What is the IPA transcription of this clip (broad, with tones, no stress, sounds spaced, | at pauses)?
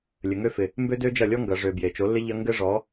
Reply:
lʲ ɘ˨ ŋ ø˦ f ɪ˨ | m b ø˦ d ø˦ d͡ʒ ɐ˦˨ lʲ ɔ˦ ŋ ɡ ɐ˨ ʐ ø˨ b j e˨ t͡ʃ o˨˦ lː ɪ˦ ʎ ɐ˦ ŋ ɡ ɘ˦ ʐ ɔ˨˦